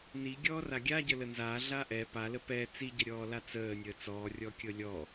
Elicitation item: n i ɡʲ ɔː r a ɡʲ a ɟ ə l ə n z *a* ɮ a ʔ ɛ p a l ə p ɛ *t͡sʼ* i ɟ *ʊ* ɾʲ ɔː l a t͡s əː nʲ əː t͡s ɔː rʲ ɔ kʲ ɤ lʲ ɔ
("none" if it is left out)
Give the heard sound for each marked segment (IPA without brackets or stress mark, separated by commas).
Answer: a, t͡s, ə